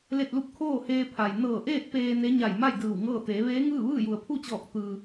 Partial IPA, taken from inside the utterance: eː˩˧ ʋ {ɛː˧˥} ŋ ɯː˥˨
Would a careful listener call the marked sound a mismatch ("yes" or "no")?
yes